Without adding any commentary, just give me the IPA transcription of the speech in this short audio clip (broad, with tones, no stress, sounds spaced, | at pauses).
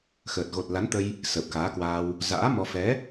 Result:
x əː˨˩ t̚ ɣ o˨˩ t̚ l a˨˦ n t̪ ə˧ j | s əː˨˩ p̚ k aː˨˦ k w aː˧ w | z a̰ː˧˥ m ɔ˧ f ɛ˨˦